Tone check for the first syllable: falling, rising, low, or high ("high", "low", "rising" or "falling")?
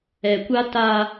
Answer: low